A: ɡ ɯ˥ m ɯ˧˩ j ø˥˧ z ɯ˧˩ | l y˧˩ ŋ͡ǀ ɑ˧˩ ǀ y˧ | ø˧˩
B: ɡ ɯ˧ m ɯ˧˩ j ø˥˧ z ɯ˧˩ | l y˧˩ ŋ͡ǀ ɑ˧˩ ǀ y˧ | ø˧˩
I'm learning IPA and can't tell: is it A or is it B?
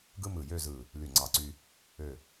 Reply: A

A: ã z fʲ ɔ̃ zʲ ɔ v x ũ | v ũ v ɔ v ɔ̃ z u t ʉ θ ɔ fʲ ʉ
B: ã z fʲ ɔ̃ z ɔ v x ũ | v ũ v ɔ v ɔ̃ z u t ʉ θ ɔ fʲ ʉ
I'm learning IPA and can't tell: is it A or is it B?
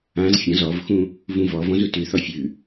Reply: B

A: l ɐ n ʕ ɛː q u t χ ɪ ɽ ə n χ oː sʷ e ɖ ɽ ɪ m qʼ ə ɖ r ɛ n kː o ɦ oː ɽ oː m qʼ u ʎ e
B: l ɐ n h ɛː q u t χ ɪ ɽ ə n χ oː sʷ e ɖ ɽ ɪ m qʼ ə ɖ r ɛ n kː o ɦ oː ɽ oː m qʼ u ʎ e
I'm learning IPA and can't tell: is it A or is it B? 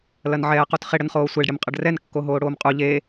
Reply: A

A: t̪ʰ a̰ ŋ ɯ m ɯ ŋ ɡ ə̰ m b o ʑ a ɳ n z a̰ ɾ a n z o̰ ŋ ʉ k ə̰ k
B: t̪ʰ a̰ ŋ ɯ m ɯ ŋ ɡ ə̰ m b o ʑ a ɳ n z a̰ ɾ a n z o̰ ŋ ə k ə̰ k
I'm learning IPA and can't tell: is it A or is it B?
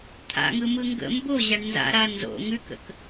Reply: A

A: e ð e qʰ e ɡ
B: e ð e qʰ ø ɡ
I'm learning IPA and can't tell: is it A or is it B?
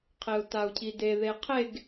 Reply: A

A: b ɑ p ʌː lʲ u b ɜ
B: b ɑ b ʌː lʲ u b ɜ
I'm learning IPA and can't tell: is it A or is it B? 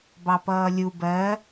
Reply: A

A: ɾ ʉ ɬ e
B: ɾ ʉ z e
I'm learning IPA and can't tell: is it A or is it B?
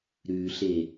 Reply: A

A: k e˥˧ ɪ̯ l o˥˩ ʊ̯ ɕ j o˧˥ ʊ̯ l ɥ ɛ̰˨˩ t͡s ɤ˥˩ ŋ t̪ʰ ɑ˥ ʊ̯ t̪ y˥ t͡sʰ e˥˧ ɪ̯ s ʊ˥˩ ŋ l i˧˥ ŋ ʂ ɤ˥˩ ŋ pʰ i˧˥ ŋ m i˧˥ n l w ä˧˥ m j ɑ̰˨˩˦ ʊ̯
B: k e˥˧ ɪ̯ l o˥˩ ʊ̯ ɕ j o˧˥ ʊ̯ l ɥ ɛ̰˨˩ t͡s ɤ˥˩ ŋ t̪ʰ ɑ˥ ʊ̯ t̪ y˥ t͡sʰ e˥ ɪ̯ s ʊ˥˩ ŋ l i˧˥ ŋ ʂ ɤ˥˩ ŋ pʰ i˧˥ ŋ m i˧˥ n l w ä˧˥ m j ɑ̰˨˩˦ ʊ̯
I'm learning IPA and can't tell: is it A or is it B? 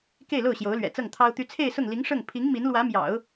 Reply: A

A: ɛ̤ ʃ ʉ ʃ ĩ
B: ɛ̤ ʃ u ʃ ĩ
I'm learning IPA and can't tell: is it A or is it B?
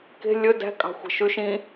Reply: A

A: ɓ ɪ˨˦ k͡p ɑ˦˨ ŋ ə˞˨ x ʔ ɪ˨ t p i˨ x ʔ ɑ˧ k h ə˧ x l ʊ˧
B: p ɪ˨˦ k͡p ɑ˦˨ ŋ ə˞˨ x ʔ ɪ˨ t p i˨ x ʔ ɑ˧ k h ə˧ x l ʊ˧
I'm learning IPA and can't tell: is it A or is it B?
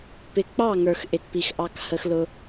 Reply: B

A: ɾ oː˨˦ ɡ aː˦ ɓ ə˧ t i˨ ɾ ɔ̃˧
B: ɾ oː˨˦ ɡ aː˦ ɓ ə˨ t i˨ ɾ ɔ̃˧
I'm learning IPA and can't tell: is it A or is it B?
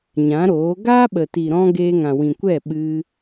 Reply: B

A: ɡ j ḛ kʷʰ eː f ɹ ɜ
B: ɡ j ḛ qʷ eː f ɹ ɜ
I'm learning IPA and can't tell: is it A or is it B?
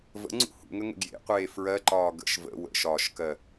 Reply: B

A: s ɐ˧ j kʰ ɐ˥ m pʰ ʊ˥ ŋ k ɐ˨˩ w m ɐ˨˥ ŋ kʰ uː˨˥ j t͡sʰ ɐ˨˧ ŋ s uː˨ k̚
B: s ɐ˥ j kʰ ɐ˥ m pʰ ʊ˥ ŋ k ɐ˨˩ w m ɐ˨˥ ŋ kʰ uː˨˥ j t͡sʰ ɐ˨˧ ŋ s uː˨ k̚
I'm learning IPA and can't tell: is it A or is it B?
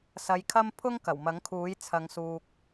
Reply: A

